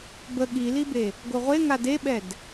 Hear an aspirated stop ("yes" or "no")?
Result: no